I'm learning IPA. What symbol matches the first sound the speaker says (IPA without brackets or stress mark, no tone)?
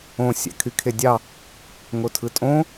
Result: õ